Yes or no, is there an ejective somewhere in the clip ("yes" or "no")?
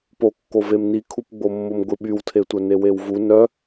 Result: no